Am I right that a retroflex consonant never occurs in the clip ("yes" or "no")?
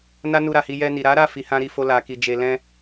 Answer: yes